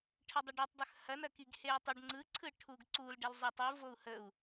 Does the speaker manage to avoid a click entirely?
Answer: no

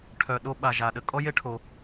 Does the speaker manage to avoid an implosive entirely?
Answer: no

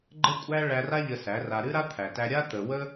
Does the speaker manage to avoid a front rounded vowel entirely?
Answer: yes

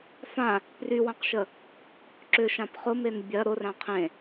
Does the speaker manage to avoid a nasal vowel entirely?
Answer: no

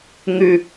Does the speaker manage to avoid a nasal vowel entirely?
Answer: yes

